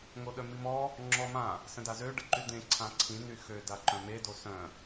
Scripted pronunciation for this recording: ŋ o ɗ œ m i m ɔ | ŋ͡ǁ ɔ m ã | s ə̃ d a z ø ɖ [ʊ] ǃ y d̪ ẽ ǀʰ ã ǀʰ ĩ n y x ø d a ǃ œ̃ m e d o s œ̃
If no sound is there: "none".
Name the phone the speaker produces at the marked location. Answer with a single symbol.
ə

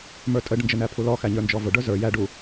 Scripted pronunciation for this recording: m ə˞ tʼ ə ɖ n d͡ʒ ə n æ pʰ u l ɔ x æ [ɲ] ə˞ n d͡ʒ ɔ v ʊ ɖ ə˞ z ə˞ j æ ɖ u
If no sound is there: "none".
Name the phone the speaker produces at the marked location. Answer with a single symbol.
ɲ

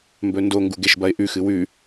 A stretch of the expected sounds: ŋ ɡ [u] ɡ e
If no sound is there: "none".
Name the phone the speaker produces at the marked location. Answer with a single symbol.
u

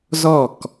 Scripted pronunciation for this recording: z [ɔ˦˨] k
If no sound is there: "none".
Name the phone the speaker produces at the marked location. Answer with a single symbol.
ɔ˦˨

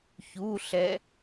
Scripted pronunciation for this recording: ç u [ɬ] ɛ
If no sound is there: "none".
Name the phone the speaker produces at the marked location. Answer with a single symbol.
ɬ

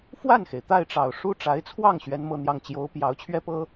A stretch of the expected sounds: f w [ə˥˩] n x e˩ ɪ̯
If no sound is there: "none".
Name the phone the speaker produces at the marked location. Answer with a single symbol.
a˥˩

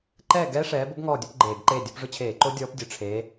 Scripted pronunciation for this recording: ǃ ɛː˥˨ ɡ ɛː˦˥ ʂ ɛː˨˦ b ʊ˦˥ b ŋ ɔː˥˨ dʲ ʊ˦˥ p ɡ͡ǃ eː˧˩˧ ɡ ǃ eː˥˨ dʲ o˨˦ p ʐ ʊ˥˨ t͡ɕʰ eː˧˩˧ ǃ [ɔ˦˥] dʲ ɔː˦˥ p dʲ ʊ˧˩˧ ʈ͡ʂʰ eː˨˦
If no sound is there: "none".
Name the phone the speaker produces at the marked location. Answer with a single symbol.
o˦˥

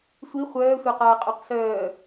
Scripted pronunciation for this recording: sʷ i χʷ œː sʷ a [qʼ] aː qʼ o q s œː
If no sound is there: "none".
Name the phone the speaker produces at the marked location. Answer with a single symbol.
q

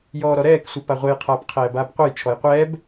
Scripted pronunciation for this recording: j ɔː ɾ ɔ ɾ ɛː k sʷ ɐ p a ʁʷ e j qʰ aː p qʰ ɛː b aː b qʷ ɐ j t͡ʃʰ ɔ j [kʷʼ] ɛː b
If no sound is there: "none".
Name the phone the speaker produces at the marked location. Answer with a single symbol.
qʷ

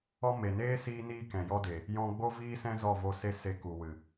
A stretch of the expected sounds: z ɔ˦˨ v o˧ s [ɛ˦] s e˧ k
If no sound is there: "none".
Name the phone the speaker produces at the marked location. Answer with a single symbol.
e˦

